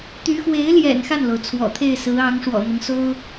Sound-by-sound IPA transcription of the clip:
t̪y˧˥xwe˧˥ɪ̯ljɛ̰˨˩n xa˥˩nlo˩ʊ̯ t͡sʰwɔ̰˨˩t̪ʰe˥˩ɪ̯sɹ̩˧˥ ɑ˧˥ŋʂwɔ̰˨˩n̪ɤ˦ŋso˥ʊ̯

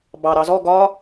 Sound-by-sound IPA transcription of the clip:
bɑ ɾɑzɔ ɡɒ

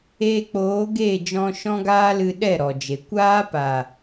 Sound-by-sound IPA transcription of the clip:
eː˧ k͡poː˨˦ ɡe˦˨ d͡ʒɔ̃˧ʃɔ̃˦ɡaː˦lɨ˧ ɗɛ˦˨ ɾɔ˨d͡ʒe˨ kʷaː˦pa˨

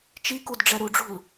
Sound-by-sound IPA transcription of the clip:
t͡ʃikud ɖ͡ʐɛɾuɖ͡ʐṳl

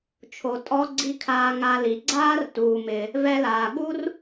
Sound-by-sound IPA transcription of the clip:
t͡ʃʰo˩tʼɔ˧ɡ͡ǀi˧ kʰaː˧ŋa˧li˩ ɡ͡ǀaː˥rtuː˩mɪ˩ | vɛ˧laː˩ɠu˥r

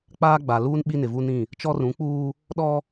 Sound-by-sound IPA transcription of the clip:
k͡paː˦ɡ͡ba˨luː˦n ɓi˦nɪ˨vu˦nĩ˦˨ | t͡ʃɔ˦rũ˨˦k͡puː˦ | ɗɔ˦

